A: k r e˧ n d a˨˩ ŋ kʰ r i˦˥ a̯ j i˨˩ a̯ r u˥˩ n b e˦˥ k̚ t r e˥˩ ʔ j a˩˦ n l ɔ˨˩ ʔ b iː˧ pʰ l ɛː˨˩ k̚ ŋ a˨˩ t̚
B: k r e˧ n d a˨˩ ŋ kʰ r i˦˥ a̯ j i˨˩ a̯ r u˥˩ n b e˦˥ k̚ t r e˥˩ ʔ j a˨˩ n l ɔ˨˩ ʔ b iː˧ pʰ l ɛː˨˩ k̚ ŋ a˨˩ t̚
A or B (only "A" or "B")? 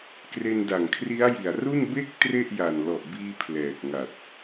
B